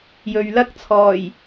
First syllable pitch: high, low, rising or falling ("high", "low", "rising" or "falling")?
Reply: low